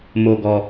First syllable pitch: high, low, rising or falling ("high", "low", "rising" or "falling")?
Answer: low